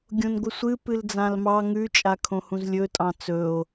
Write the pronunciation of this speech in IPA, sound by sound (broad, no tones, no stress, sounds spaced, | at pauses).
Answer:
ɡʲ õ n ɡʷ ɨ sʷ ɨ p ɨ l d͡z ã l m ɑ ŋ ʉ t͡ʃʼ a kʰ õ h ũ z lʲ ɵ tʼ ɑ̃ t͡s ɵ o̯